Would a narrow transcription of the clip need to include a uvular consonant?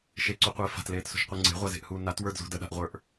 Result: yes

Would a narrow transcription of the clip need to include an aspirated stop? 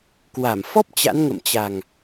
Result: no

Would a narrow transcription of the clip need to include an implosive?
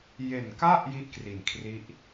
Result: no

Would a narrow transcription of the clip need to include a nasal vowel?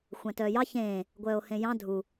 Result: yes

